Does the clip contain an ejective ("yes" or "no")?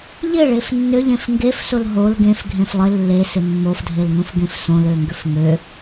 no